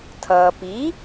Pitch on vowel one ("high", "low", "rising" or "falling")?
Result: low